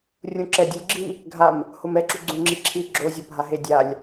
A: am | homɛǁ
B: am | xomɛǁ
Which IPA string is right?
A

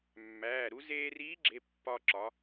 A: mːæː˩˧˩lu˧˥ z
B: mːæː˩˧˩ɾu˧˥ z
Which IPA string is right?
B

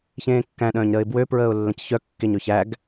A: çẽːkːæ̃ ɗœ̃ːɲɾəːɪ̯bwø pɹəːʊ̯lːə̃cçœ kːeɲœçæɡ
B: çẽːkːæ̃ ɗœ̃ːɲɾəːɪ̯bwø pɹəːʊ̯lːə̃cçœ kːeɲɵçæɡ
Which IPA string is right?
B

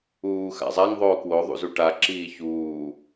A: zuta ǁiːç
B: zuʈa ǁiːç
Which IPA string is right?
B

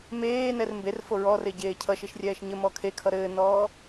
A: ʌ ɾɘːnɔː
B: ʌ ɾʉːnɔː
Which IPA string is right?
A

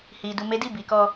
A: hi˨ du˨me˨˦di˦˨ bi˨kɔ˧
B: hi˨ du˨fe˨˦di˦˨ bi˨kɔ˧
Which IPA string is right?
A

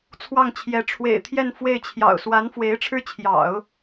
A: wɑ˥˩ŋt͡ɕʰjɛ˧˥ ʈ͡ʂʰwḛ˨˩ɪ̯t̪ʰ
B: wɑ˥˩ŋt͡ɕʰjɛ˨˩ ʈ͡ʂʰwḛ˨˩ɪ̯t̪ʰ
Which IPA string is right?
A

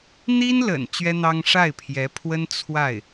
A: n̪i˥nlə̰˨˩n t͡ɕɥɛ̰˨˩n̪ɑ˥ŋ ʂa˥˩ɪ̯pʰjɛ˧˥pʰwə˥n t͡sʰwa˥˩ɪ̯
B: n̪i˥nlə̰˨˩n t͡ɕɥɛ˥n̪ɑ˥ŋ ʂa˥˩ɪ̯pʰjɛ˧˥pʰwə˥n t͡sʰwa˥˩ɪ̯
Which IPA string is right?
B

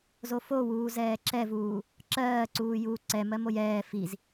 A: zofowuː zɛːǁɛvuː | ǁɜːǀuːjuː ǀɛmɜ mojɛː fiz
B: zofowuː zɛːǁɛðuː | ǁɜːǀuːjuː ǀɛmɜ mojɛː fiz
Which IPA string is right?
A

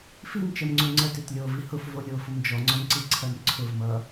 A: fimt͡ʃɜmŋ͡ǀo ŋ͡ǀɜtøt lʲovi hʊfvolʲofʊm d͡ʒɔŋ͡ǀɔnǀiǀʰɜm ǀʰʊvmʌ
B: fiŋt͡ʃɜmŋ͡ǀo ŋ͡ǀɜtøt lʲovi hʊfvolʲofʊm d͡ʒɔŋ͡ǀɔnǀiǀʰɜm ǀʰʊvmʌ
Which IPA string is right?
A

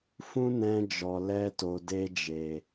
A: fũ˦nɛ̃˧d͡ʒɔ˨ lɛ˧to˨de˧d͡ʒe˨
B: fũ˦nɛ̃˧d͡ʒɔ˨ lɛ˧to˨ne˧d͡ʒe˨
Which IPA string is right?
A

